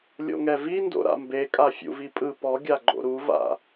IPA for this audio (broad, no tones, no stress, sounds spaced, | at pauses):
lʲ o̰ ŋ ɛ v i n d o̰ ɾ a̰ m b e kʼ a fʲ ṵ v i pʼ ɯ p ɔ ɡʲ a ɡ͡ǃ o̰ ɾ u v a̰